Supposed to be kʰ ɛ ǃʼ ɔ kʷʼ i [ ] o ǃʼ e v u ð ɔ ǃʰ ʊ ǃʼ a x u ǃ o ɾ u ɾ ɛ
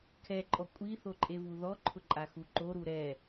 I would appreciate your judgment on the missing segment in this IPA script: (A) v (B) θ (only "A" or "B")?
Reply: B